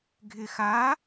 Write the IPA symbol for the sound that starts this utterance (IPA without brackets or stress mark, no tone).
ɡʱ